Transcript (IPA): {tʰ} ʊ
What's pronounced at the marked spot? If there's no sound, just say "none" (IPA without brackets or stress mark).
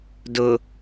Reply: d